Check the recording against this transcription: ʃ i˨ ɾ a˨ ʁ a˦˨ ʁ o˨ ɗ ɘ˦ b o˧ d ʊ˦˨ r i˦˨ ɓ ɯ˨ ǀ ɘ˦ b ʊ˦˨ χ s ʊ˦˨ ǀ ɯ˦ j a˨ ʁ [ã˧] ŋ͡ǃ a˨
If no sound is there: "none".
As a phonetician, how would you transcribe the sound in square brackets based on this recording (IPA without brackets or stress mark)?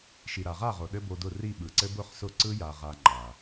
a˧